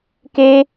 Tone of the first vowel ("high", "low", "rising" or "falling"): high